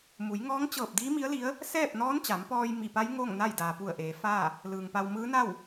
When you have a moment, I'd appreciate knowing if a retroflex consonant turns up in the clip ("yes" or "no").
no